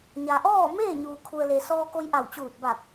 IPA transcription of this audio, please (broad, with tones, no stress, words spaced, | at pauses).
ɲa˩ʔɔː˥˨ meː˥˨ ɲuː˩kʰu˩ə̯le˩ sɔː˧ko˧jʔa˧˩wt͡ɕuː˧˩t̚ ba˧˩k̚